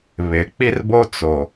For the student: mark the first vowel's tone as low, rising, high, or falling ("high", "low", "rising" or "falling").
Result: low